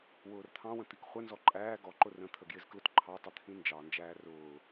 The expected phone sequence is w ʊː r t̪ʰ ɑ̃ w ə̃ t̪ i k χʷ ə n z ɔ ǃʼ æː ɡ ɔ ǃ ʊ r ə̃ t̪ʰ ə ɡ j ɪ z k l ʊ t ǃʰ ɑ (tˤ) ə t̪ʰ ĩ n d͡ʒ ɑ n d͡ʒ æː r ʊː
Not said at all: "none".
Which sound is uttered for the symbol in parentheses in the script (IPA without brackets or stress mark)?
tˤ